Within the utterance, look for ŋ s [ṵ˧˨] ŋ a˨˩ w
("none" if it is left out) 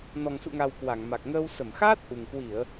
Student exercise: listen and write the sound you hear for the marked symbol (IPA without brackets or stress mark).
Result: ṵ˧˨